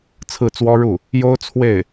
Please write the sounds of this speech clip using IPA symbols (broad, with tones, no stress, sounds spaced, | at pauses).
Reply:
t͡sʰ ɹ̩˥˩ t͡s w ɔ˥ ɻ u˥˩ | j o˥ ʊ̯ t͡sʰ w e˥˩ ɪ̯